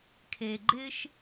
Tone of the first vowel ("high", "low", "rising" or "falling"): low